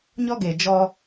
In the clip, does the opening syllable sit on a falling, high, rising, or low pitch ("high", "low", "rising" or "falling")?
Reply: high